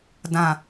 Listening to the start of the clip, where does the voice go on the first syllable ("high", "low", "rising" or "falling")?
low